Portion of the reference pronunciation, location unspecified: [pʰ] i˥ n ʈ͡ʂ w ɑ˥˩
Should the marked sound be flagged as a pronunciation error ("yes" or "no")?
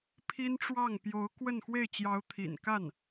no